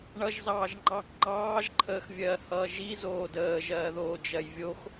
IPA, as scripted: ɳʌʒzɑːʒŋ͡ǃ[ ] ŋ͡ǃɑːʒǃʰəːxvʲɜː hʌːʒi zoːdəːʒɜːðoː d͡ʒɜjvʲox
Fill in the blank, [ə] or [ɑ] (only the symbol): ɑ